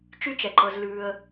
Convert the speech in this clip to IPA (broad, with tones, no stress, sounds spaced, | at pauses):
t͡ʃ y˦ t͡ʃ ɛ˩ ǃ ɤ˨ z l ʉː˨ ə̯